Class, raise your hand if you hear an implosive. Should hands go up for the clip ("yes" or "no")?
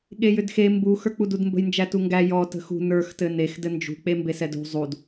yes